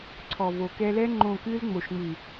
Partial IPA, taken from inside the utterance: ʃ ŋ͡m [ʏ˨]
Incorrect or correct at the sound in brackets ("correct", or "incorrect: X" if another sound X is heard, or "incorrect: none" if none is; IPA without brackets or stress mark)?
incorrect: ɨ˨